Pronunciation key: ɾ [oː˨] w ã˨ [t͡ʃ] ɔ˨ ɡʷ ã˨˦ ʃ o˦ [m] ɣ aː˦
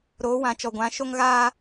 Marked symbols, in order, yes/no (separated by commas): no, yes, no